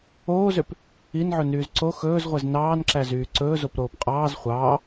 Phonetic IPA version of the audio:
oː z ø p | i n ʕ ɵ n yː z ǀ o x ɵː z ʁʷ ɛ z n ɑː n ǁ æ z yː ǀ ɵː z o p ɾ oː p qʼ ɑː z χʷ ɑː

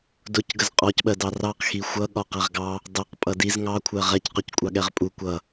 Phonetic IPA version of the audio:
d ʊ c ɡ ə z qʼ ɔ c ɓ ɜ d ɑ r ɑ q x i xʷ ʌ ɠ ɒ q æ ʁ ɡ ɑ | d ɑ q pʼ ʌ d i z ŋ ɑ kʷʰ ɜ ʁ ɛ c q ʊ c kʷʼ ɑ ɠ ɛ ʁ pʼ u kʷ ʌ

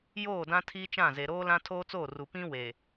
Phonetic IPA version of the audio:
j oː˦˨ d ã˦ tʰ iː˦ t͡ʃ ã˦˨ z e˨ ɾ oː˦ l ã˦ tʰ oː˦ t͡s oː˦˨ r u˨ p ĩ˦ w e˨

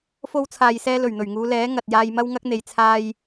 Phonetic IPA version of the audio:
f o˧ w t͡sʰ aː˨ j s ɛː˧ l ɵ˨˩ ɥ n̪ ɵ˨˩ ɥ ŋ uː˨˧ l ɛː˨˥ ŋ ɐ˨ t̚ j aː˧ j m ɐ˥ w ŋ ɐ˥ k̚ n̪ e˨˧ j t͡sʰ aː˧ j

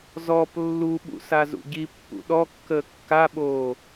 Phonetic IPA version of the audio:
z ɔ p lː u ɓ ṵ s a z ṵ ɟ i pː ṵ ɗ ɔ kː əː kː a ɓ oː

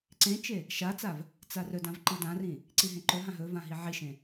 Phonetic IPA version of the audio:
ǀ ẽ t͡ʃ e | ʃ a t͡s a v | t͡s a r ɵ d ã v ǃ i d ã r ĩ | ǀ i ɦ ẽ ǃ ɵ ɦ ã ɦ ɵ v ã ɦ i ʕ i ʃ ẽ

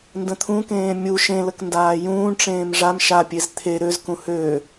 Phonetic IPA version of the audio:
n d ə̃ t̪ʰ ũ k ẽː mʲ u ʃ ẽ l ə k n d aː j ũː ɳ ʈ͡ʂ ẽː m ʐ a m ʃ a pʲ e z t̪ʰ e ɾ ø z k ũ h ø

